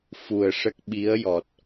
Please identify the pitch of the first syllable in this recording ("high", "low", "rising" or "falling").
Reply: low